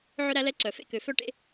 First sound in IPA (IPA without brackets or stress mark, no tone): ʕ